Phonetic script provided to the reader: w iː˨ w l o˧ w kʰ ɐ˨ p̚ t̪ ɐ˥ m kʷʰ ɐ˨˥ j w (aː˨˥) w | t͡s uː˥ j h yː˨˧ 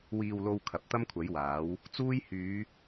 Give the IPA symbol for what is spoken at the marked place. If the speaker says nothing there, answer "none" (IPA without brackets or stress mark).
aː˨˥